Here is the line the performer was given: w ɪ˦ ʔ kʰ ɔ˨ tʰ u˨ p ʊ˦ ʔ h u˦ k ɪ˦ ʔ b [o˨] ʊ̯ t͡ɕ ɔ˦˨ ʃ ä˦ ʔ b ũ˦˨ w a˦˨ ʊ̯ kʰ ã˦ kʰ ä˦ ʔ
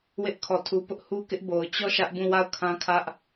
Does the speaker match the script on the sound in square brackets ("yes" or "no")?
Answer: yes